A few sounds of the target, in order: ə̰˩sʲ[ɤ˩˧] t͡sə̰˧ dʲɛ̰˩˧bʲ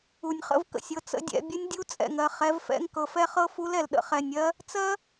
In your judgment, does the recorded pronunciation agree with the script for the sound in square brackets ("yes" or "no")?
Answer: yes